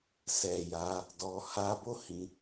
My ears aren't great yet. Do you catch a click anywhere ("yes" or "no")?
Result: no